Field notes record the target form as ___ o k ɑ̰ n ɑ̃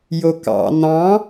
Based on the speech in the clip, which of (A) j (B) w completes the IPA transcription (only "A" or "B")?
A